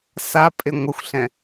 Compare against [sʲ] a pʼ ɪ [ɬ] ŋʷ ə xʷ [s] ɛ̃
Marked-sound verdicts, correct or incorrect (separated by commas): incorrect, incorrect, incorrect